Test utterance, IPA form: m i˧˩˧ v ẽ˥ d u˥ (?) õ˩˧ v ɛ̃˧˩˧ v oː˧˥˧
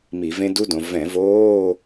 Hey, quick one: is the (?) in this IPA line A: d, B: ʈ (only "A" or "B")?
A